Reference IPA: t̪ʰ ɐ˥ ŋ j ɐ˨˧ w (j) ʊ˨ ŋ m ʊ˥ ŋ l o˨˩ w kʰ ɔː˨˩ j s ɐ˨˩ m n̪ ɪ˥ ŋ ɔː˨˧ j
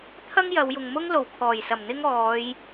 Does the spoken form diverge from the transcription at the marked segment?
no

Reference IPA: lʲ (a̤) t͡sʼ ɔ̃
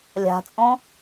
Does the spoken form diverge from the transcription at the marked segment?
no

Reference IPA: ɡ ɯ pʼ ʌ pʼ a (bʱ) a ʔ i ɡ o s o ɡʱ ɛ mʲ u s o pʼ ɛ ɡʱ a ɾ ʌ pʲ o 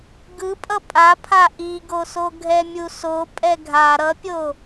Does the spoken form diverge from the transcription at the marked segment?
yes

